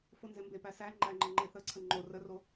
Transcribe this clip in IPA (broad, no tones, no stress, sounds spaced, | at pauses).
f o n z e m b e p æ s æ ŋ͡ǃ æ ŋ͡ǃ ə ŋ͡ǃ e θ ə ǀʰ ə ŋ͡ǃ o r ə r o